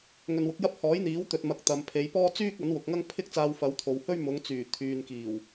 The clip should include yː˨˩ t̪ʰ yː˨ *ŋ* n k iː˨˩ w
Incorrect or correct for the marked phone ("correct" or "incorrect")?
incorrect